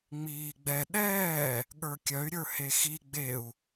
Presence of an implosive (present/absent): present